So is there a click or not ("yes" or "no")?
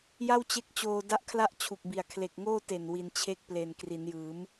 no